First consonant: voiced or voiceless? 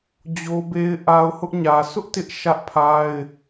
voiced